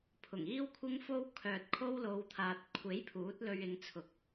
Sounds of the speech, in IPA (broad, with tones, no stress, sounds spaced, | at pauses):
pʰ ʊ˨˩ ŋ iː˥ w kʷʰ ɪ˥ ŋ f o˥ w kʰ œː˨ t̚ kʰ o˥ w l o˨˧ w t̪ʰ aː˨ t̚ kʷʰ e˨˥ j pʰ uː˨˥ t̚ l ɵ˧ ɥ ɪ˨˧ ŋ t͡sʰ ʊ˨˥ k̚